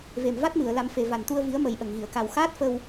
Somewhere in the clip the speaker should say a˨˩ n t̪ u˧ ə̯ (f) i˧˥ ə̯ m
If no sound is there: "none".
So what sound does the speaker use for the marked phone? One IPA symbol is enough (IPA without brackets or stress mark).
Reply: v